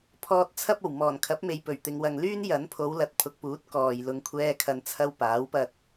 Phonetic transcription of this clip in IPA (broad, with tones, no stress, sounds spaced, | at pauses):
pʰ ɔː˨ t̚ t͡sʰ ɐ˧ p̚ o˨˩ w m ɔː˨˩ n kʰ ɐ˨˥ p̚ m e˨ j p ɵ˨˩ ɥ t̪ ɪ˨ ŋ w ɐ˨ ŋ l yː˥ n j ɐ˨˥ n pʰ o˨˧ w l ɐ˨˥ t̚ pʰ ʊ˨ k̚ p uː˨˥ t̚ k ɔː˨ j l ʊ˧ ŋ kʷʰ ɛː˥ kʰ ɐ˧ n t͡sʰ ɐ˥ w p aː˨˥ w p ɐ˧ t̚